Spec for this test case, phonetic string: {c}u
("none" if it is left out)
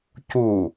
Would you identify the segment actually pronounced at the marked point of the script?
c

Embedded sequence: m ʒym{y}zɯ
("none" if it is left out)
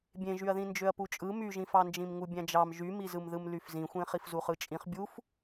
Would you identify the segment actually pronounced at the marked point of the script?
i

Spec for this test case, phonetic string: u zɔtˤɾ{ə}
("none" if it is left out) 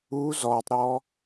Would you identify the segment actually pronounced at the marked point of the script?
ɔ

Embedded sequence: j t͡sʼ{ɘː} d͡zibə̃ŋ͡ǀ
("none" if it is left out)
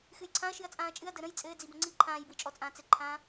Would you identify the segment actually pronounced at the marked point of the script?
ɘː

